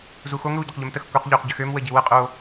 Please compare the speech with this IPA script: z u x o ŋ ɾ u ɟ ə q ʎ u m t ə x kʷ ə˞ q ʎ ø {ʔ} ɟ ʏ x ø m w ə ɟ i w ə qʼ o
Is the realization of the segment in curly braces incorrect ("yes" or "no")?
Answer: yes